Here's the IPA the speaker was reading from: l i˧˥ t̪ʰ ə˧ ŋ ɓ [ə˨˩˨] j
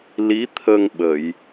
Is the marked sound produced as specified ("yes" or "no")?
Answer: yes